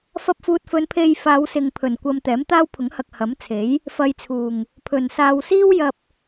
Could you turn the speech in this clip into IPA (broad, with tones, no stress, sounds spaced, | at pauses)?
f ɐ˧ p̚ f uː˨ t̚ f ɵ˨˧ n pʰ e˧ j f aː˨˧ w s ɪ˨ ŋ pʰ ɵ˨˩ n kʷ ɐ˧ m t̪ ɛː˨˥ m t̪ aː˥ w pʰ ʊ˨˥ ŋ h ɐ˨ k̚ h ɐ˨˥ m t͡sʰ e˨˥ j | f ɐ˨ j t͡sʰ uː˨˩ ŋ | pʰ ɵ˨˩ n s aː˧ w s iː˥ w j ɐ˧ p̚